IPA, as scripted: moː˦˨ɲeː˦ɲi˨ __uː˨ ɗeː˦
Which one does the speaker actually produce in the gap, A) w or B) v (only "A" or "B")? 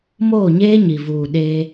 B